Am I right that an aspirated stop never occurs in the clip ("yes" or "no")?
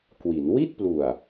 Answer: yes